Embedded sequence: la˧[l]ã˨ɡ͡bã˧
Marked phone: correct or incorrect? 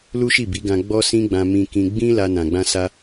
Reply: incorrect